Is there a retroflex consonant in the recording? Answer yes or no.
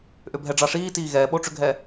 yes